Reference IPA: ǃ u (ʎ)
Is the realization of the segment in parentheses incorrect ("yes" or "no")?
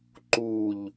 no